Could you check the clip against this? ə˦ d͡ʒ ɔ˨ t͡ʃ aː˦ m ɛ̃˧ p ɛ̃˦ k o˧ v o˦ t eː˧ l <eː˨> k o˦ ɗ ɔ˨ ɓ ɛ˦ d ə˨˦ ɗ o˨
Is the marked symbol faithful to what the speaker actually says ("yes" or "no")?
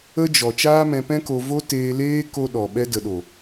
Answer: no